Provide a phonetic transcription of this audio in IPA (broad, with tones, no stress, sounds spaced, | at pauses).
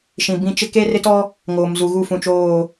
ʃ ĩ˨ b ĩ˦ t͡ʃ ɪ˦ k e˦ r ɪ˦ t ɔ˦ | ŋ oː˨ m z u˨ ɣ u˦˨ f ũ˨ t͡ʃ oː˦˨